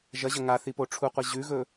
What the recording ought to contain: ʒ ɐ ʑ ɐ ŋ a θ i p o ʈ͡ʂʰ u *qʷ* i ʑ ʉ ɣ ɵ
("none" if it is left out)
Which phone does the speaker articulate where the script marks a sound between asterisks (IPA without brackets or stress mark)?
qʷ